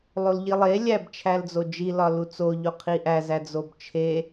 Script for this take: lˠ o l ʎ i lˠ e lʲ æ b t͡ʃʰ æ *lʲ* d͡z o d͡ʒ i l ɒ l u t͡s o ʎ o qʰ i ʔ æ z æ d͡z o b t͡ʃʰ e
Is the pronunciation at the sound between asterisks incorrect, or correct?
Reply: incorrect